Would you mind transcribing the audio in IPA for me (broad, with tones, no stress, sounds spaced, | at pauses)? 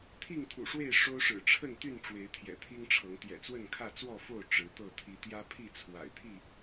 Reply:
t̪ʰ i˥˨ ŋ t̪ʰ ṵ˨˩ ʂ w e˥˨ ɪ̯ ʂ o˦ ʊ̯ ʂ ɻ̩˨˩ ʈ͡ʂʰ ə˥˨ n t̪ y˥˨ n ʈ͡ʂ w e˨˦ ɪ̯ t̪ʰ j ɛ̰˨˩ t̪ʰ i˦ ŋ ʈ͡ʂʰ ɤ˨˦ ŋ t̪ j ɛ̰˨˩ t͡s w ə˥˨ n kʰ ä˥˨ t͡s w ɔ˥˨ f o˥˨ ʊ̯ ʈ͡ʂ ɻ̩˨˦ t̪ ɤ˥˨ t̪ʰ i˨˦ t̪ j ä˦ pʰ i˥˨ t͡sʰ w a̰˨˩ ɪ̯ t̪ʰ i˥˨